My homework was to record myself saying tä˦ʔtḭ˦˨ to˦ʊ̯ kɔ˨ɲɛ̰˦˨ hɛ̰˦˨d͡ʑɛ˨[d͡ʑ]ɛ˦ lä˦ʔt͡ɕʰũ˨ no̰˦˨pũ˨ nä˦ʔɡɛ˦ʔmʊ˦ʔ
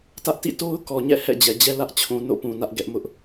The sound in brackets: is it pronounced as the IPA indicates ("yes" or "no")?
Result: yes